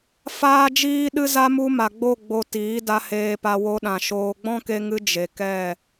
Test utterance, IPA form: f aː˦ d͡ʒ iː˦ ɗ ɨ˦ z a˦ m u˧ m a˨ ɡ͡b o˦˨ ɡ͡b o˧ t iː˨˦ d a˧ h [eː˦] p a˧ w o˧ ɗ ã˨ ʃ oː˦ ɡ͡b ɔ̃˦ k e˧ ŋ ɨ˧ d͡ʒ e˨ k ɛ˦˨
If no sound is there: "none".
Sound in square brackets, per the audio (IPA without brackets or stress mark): eː˧